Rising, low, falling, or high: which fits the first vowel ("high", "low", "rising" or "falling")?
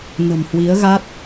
low